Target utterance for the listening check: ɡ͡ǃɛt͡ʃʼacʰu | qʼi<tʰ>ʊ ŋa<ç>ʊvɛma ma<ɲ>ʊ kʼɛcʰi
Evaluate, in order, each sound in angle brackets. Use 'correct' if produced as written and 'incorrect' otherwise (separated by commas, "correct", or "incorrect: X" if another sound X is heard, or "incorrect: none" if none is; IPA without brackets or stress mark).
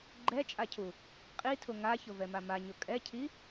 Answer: correct, correct, correct